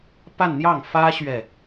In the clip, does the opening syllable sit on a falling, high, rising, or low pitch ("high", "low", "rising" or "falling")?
falling